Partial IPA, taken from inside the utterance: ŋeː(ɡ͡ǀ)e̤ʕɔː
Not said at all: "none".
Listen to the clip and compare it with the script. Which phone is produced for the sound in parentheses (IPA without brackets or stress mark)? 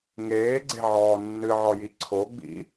ɡ͡ǀ